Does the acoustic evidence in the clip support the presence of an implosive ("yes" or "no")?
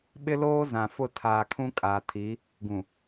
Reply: yes